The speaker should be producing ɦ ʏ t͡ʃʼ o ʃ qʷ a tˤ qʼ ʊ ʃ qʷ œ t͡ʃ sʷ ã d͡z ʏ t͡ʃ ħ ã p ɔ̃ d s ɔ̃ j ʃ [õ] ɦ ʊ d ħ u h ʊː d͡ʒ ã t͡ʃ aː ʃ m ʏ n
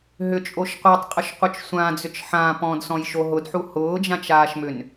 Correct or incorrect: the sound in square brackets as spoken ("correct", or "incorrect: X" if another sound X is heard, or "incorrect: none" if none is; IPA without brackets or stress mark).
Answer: incorrect: o